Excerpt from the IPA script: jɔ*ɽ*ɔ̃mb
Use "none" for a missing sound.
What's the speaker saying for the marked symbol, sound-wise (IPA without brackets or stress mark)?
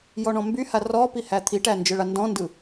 ɳ